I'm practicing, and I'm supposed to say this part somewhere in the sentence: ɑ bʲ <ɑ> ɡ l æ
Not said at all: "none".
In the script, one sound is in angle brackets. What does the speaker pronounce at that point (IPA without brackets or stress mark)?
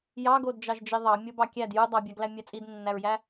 ɑ